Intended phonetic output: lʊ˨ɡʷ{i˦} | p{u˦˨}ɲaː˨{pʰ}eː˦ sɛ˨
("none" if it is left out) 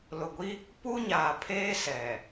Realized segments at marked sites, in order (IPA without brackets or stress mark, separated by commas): i˦, u˦, pʰ